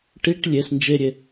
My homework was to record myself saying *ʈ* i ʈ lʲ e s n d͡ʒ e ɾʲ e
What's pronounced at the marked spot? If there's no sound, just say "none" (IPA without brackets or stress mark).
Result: ʈ